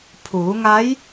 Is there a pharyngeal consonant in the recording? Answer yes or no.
no